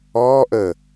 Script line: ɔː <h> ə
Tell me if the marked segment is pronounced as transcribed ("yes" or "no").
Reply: no